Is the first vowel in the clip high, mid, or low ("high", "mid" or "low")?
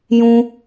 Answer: high